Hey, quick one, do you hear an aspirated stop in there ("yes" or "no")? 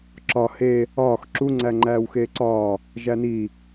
no